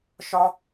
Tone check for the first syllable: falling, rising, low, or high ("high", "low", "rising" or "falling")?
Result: high